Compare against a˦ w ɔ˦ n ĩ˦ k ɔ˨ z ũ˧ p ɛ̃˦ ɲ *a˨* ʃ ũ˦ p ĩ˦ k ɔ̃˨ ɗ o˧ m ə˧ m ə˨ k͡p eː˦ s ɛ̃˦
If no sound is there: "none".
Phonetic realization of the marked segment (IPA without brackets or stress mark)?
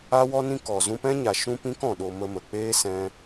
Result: a˨